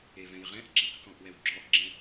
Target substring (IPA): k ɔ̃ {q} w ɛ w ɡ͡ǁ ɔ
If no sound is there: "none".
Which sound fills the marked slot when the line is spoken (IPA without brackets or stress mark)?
ʔ